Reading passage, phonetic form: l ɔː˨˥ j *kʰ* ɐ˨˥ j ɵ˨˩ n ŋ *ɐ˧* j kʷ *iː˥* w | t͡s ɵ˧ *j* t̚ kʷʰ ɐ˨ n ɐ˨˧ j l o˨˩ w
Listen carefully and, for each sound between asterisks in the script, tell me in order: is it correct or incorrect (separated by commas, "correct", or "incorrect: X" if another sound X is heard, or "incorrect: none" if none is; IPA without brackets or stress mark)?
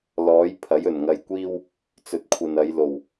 incorrect: pʰ, correct, correct, incorrect: none